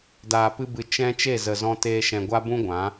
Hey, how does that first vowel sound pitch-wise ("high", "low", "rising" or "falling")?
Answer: low